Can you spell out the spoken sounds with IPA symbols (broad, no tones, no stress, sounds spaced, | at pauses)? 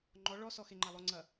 ŋ͡ǃ ɔ ɭ ɔ s ɔ x e ŋ͡ǃ a lˠ o ŋ͡ǀ ɐ